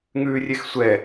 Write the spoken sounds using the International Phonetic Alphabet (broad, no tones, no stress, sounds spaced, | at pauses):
ŋ ʉː rʲ e x sʷ ɛ